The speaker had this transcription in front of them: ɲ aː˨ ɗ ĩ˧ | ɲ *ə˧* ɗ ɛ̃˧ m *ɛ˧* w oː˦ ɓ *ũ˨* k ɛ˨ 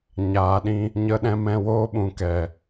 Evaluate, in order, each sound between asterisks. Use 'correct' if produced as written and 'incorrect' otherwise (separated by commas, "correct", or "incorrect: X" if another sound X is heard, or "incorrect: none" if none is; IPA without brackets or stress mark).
correct, incorrect: ɛ̃˧, correct